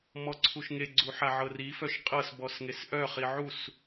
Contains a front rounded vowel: yes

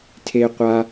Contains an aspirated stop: yes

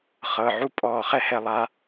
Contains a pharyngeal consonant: yes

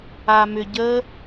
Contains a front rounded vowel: yes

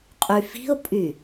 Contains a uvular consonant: yes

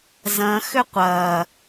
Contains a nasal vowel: yes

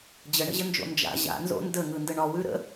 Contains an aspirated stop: no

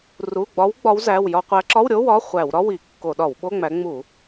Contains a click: yes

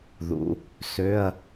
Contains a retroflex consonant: no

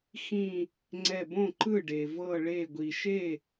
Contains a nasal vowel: yes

